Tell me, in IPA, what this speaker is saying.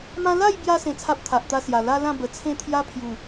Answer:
mã˦ la˥˧jbja˧ sẽ˧t͡sʰa˦p̚ t̪ʰa˨ʔt̪a˧sja˨˩ la˦lã˥˧ bə˨˩t͡sʰẽ˥˧t̪ʰja˦pʰju˨˩

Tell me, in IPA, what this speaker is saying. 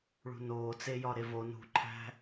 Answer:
ɭṳnoː t͡sejɒɾevo nṳǃʰæ̤

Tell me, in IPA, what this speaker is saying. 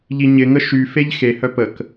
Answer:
ʎiɲɪŋə ʃyfeʎ xehœ pək

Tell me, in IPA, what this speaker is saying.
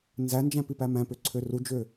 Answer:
nzænd͡ʒæ̃pipæ mæ̃pøǀʰø rud͡ʒø

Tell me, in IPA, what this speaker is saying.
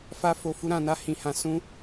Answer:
fa˦ fo˧fu˦ɾã˧na˦ hĩ˧ hã˧sũ˦

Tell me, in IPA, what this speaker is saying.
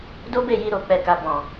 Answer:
do˦be˦˨ji˧ ɾo˨k͡pɛ˨ka˨ bɔ̃˨

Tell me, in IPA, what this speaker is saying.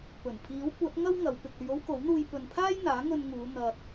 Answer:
pɵ˨˩n pʰiː˨˥wkʷɐ˨˥t̚ ŋɐ˥w ŋɐ˨˧w pɪ˨k̚ ɵ˧ɥo˥wko˨˥wn̪uː˧j pɵ˨npʰaː˥jn̪aː˨˥ ŋɵ˧nŋuː˨˧ n̪ɐ˨t̚

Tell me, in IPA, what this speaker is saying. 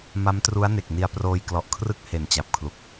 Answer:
ma˦˥mtru˦˥a̯ne˨˩k̚ni˧a̯ proː˧jklɔ˨˩ʔkʰrɯ˥˩k̚ he˨˩nt͡ɕa˨˩p̚kʰlu˨˩k̚

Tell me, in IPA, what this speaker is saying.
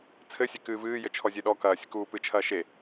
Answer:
t͡sʰɘsʲe kɨːvɨː jɘt͡ʃʰɔzʲeɗɔ kɐːsʲɨk uːpɨt͡ʃʰɐː ʃe

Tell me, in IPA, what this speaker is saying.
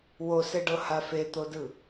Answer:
woseɖɤha fet̪odɯ

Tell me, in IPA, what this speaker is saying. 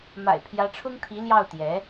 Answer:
ma̰˨˩ɪ̯pʰjä˧˥ʈ͡ʂʰʊ˥ŋt̪ʰi˧˥ ljɑ˥˩ʊ̯ t̪jɛ˧˥

